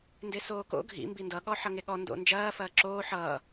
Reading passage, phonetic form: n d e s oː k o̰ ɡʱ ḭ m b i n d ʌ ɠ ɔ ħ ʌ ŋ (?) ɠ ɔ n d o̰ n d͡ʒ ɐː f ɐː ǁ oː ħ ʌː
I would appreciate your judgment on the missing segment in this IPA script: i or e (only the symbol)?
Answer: e